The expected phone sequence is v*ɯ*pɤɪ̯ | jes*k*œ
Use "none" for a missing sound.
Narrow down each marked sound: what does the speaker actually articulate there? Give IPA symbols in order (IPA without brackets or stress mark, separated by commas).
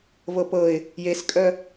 ɤ, kʼ